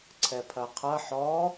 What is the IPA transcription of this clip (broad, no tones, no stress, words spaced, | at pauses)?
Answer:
ǀʰɛpʰɐqʰɐ ħɔ